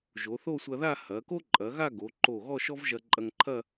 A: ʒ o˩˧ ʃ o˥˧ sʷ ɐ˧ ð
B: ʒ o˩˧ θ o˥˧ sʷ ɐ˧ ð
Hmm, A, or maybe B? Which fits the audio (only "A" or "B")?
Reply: B